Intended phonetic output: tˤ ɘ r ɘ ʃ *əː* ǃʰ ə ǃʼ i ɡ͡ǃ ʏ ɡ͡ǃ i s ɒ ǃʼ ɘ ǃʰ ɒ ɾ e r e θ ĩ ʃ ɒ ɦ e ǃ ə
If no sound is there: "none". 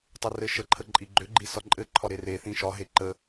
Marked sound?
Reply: ə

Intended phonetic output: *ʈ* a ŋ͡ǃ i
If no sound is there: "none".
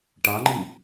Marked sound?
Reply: ʈ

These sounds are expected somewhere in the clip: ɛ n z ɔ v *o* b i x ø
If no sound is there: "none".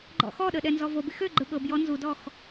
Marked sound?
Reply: o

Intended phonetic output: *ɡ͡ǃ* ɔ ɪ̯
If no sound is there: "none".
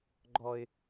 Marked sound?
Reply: ɡ͡ǃ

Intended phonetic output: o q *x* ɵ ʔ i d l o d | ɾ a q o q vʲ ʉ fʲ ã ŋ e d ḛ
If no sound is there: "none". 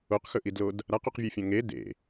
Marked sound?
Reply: x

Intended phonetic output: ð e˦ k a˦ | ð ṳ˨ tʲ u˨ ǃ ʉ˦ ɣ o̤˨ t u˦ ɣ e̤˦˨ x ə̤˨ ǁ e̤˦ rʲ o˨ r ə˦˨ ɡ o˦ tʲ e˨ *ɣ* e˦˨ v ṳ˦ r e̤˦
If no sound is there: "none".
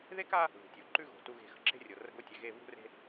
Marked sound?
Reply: ɣ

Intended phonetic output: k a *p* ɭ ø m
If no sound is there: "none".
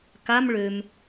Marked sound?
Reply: m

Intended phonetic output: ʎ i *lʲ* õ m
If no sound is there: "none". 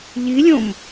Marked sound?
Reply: lʲ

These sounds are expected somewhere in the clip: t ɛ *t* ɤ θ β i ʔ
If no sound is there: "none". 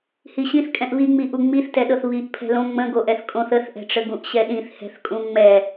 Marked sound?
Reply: ɗ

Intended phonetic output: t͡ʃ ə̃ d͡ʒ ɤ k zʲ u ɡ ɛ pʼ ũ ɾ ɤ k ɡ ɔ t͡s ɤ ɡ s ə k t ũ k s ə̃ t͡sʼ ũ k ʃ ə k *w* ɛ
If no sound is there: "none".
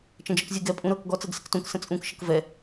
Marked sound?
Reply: v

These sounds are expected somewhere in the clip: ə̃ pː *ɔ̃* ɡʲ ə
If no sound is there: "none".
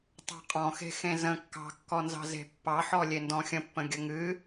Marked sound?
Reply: ə̃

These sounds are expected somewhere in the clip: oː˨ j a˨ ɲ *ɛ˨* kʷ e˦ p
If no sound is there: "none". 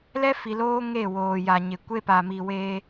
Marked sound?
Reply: ɪ˨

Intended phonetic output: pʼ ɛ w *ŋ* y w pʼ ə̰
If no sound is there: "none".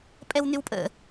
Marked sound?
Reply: n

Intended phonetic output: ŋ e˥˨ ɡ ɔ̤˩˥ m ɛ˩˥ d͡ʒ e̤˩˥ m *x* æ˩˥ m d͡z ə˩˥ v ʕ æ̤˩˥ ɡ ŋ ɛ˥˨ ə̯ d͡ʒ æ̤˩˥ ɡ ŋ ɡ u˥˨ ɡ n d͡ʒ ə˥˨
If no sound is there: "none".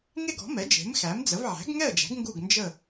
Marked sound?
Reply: x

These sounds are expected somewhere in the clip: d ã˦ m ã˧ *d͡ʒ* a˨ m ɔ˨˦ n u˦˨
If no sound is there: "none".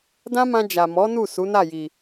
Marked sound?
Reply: d͡ʒ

